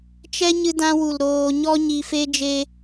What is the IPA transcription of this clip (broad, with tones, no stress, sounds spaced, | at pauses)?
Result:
t͡ʃ ɛ˦ ɲ ɨ˧ d ã˧ w u˨ l ɾ oː˧ ɲ ɔ˦ ɲ i˧ f e˦ d͡ʒ e˦